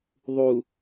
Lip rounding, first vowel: rounded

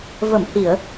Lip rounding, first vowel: unrounded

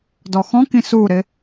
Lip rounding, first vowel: rounded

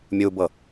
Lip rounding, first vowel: rounded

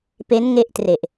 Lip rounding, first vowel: unrounded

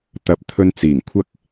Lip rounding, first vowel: unrounded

